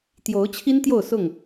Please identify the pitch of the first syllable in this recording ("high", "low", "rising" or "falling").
rising